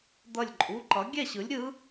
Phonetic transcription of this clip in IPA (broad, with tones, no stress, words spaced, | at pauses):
d̪ʌ˧˩lʲǃʼu˩˧˩ǃʌ˩˥ ɡʲɛ˥˩ɕɯ˩˥lʲɾʲɯ˧˥